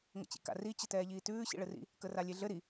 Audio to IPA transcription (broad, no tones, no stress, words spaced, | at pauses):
ŋə̰t͡ɕḭka̰ri t͡ɕətɛːʎiːtʉː ɕḭɭɘrḭ | kəralʲeɮɘ ɾi